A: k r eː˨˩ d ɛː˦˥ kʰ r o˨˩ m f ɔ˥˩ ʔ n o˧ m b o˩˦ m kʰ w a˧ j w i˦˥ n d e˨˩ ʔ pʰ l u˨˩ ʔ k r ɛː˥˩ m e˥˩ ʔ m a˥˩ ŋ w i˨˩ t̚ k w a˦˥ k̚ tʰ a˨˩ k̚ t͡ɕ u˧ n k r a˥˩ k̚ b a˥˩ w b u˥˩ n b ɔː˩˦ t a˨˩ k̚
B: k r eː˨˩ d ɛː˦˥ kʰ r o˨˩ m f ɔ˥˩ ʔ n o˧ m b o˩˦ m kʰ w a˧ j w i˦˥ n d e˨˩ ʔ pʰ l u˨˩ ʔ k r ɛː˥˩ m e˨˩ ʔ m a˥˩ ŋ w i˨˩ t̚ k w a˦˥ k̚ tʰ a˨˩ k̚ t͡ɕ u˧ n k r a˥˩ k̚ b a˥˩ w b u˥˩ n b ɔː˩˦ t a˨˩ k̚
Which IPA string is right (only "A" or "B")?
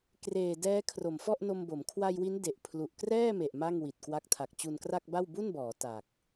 B